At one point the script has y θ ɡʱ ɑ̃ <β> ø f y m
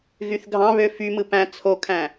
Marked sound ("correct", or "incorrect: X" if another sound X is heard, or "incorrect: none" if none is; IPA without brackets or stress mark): correct